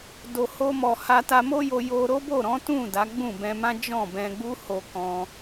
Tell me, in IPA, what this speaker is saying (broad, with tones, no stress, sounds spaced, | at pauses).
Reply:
d o˨ h o˧ m ɔ˨ h a˧ t a˧ m o˦ j o˧ j o˧ ɾ o˦ b o˦˨ ɾ ɔ̃˨˦ t ũ˦˨ d a˨˦ ɡ͡b ũ˦˨ b ɛ̃˧ m ã˦ d͡ʒ ɔ̃˦˨ b ɛ̃˧ ɡ͡b u˦ h o˧ k ɔ̃˦